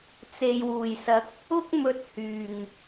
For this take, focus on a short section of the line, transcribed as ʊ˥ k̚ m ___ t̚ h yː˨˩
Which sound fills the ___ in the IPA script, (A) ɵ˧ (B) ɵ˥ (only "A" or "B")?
A